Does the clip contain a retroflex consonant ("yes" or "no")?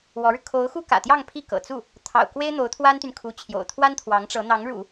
yes